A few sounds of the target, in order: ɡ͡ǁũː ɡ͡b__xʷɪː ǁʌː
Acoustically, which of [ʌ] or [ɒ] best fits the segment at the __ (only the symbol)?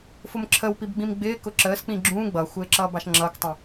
ʌ